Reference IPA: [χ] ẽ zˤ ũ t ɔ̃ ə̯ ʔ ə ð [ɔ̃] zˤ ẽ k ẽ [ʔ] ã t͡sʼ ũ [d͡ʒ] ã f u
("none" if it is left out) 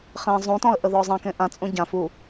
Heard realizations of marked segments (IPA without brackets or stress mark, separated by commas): χ, ɔ, ʔ, ɟ